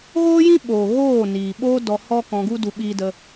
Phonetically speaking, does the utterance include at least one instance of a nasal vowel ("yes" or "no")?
yes